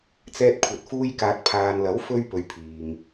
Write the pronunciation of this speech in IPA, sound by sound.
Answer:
t͡sɛː˧t̚kʷʰɐ˨t̚ fuː˧jkaː˨t̚pʰaː˨nlɐ˨˥w fɵ˥ɥpɵ˨˧ɥ pʰiː˨ŋ

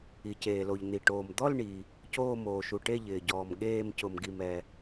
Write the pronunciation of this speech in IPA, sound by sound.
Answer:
i˩ceː˩lo˩ʎ n̪i˩ʈoː˩m d̪ɔ˥˧lɳi˩ | coː˥˧moː˩ʃu˩ʈe˥˧ ʎɪː˩ɟɔː˩m ɠeː˥˧m cʊ˩mɡi˩mɛ˩

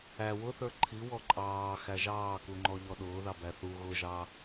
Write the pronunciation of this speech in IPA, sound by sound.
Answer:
æ wʊθə˞ ǃʰiwɔ ǃʼɑː xæʒɑːkuŋ͡ǃɔ ʎɔɗʊːðɑ bæθu ɣʊʒɑ

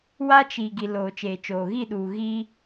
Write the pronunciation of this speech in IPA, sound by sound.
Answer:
wa˦t͡ʃi˨ ɡi˨ loː˨t͡ʃeː˨t͡ʃoː˨ ɣi˦˨ɗuː˨ ɣi˦

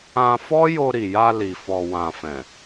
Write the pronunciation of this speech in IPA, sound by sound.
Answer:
ã˧ fɔ˦jo˧ɾi˨ja˧ li˨fɔ˨wã˨ fɛ̃˨

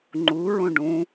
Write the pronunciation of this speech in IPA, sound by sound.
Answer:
ŋ͡ǃuɹũ ɖũ

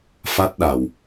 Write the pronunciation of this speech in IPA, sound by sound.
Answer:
fa˦˥t̚ɗa˨˩w

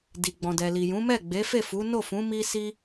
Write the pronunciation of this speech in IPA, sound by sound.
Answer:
di˨ɡ͡bɔ̃˨dɛ˨li˨ jũ˨˦mɛ˦˨ ɡ͡be˨˦fe˦˨fu˨˦ no˦˨fũ˨˦ mi˦si˦

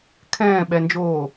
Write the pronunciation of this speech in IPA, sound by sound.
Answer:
kʰɛ̃ːɓɛnd͡ʒoː

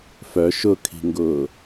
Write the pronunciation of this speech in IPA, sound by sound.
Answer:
fœ ʃʊkʰi̤ŋɡʊː

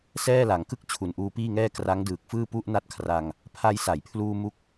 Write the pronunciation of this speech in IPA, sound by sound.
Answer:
sɛː˥˩la˩˦ŋkɯ˥˩k̚ t͡ɕʰu˨˩nʔuː˧piː˥˩ŋɛː˥˩ kra˦˥ŋdɯː˨˩k̚fɯː˥˩ pu˥˩ʔna˥˩t̚kʰra˧ŋ | pʰa˧jsa˩˦jpʰluː˧ mu˦˥k̚

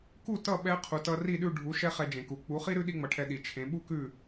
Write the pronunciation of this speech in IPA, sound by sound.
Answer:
ku˥˩tʌ˥˩ɓɛ˧ qʰu˩tʌ˧ ri˥˩ɗʉ˥˩ɖʱu˩˥ ʃɛ˥χɛ˧d͡ʒẽ˩ku˩ k͡pu˩˥χi˥ɾʉ˥ ɗi˥ŋ͡mʌ˩˥ʈʰɛ˧ ɗi˩t͡ʃʰẽ˩˥ ɓu˥kʉ˥˩

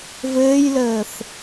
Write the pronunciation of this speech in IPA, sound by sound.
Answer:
vɘːjləːθ

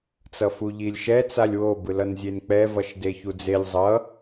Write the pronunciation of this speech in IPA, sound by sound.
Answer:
t͡sʌfuʎilʲʃɛ t͡salʲwo bɯlʌnzʲenk͡pɛ vʌʃdeçud͡zelʲ zˤʌ

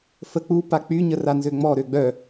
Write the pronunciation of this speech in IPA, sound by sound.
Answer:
fək͡pu pak͡py ɲəranzøŋ͡mɔ ɾøɡ͡bœ

